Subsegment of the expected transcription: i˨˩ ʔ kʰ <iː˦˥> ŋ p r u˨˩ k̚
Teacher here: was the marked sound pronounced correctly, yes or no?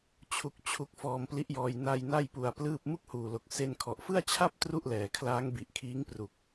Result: yes